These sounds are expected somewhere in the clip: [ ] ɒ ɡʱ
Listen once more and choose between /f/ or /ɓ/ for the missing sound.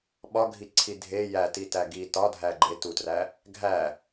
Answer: ɓ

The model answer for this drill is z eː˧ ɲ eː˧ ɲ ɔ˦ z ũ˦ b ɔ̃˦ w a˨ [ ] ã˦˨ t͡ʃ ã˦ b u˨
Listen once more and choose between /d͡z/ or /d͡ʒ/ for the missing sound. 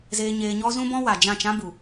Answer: d͡ʒ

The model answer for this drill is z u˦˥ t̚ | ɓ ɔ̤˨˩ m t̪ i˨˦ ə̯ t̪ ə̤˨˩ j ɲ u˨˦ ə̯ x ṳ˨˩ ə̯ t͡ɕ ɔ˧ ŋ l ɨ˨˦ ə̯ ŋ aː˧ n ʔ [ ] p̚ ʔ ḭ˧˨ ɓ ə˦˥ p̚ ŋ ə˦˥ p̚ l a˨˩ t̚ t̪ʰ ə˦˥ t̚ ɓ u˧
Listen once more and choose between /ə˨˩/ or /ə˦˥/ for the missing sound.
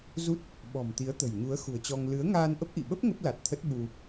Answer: ə˦˥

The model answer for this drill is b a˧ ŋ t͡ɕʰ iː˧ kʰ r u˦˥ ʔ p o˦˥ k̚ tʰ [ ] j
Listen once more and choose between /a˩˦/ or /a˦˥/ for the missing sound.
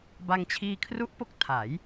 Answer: a˩˦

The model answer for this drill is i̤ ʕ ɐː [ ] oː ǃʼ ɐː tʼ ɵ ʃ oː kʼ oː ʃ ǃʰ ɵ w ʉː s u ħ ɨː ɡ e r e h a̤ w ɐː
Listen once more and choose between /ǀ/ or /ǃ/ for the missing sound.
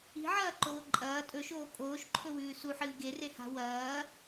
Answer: ǃ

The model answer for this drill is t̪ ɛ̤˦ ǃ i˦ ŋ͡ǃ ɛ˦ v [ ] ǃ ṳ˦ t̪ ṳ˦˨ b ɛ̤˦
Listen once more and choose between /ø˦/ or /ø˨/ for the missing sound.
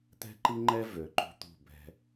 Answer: ø˨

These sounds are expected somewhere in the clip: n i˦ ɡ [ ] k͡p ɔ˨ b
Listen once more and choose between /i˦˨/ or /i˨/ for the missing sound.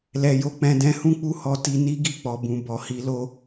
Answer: i˦˨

